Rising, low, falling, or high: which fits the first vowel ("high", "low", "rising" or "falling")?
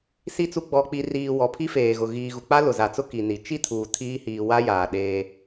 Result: low